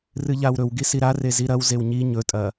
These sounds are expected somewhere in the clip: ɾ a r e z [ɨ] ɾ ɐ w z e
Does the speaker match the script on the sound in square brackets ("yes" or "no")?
no